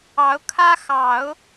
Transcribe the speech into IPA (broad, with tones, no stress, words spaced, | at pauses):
ɑ˧˥ʊ̯kʰä˥xɑ˨˩˦ʊ̯